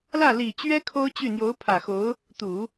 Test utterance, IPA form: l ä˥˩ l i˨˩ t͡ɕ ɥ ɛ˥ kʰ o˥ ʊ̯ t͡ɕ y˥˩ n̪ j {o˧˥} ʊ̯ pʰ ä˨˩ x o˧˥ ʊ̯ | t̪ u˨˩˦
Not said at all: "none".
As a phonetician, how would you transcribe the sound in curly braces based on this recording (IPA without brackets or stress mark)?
o˧˥